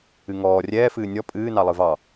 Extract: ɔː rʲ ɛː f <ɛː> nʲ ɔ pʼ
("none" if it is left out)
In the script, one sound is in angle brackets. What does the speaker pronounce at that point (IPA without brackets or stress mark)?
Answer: ɨː